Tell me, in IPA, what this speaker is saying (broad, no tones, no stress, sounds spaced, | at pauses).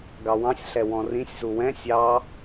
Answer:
ɡ ɑ w ɑ̃ sʲ ɬ ɛ w ɔ̃ r ĩ sʲ z u w ɛ̃ sʲ ɑ